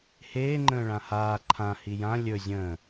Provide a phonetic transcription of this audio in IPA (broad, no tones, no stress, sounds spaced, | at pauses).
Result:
h eː ŋ͡ǃ ə̃ː ɭ ã h aː ǃʰ ã h i j ã lʲ ɵ zʲ ə̃ː